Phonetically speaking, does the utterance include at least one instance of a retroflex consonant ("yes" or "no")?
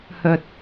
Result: no